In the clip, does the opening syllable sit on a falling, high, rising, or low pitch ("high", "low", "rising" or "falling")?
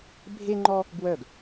high